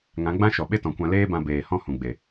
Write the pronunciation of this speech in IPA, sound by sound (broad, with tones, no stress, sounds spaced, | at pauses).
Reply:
ŋ ã˨˦ ɡ͡b ã˦ ʃ ɔ˨ ɓ e˦ t ɔ̃˨ kʷ ã˧ l eː˦ b ã˧ b eː˨ h ɔ̃˦ h ũ˨ ɡ͡b e˨